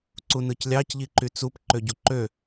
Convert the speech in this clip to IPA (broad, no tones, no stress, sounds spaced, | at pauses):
ǀ u n ɯ c lʲ ɑ c ʎ i ǃ y t͡s u p ǃ ø ɟ u ǃ ø